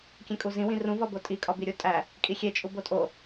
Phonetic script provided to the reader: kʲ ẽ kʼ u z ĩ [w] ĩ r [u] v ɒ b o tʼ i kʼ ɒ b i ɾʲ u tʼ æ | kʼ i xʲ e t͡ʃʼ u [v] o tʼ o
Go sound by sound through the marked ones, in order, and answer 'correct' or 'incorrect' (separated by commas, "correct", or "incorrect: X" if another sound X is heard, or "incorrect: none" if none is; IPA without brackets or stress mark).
correct, incorrect: ũ, incorrect: b